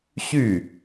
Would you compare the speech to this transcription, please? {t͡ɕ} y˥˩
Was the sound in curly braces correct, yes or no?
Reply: no